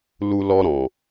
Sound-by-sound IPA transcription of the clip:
l u˧ l ɔ˧ ɾ ɔ̃˨

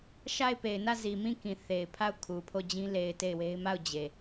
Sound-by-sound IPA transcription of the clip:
ʃ a˦˨ ɪ̯ p e˨ ɪ̯ n ä˦˨ z i˨ m ĩ˦˨ k ĩ˨ θ e˨ ɪ̯ pʰ a˦˨ ʊ̯ kʰ u˨ pʰ o˦˨ d͡ʑ ĩ˦ l e˨ ɪ̯ t e˦˨ ɪ̯ w e˦ ɪ̯ m a˦˨ ʊ̯ d͡ʑ e˨

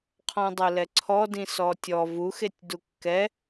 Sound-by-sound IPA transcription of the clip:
qʰ ɔ̃ dˤ o l ɛ ǀʰ ɔ d ĩ s ɔ tʲ ɔ v u x e tʲ d u kː ɛ

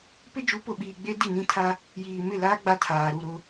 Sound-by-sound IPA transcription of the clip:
p ɪ˦ d͡ʒ u˨˦ p ʊ˨ ɓ iː˨ ɡ͡b e˦ d i˦˨ n ĩ˦ tʰ a˦ | j iː˨ m ɪ˦˨ l aː˦ ɡ͡b a˦ tʰ aː˨ ɾ u˦˨ ɾ ʊ˦

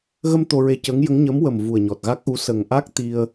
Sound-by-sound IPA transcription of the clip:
ɣ ə˧ m t̪ o˧ ɹ e˧ c əː˧˥ ŋ j ə˧˥ ŋ ɲ ə˧˥ m w ə˨˩ m v u˨˩ ə̯ ɲ ɔ˨˩ t̚ ɣ a˦˥ k̚ ʔ u˧˥ s ə˨˩ ŋ ʔ a˦˥ k̚ t̪ i˧ ə̯

